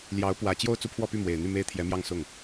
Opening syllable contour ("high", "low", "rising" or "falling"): rising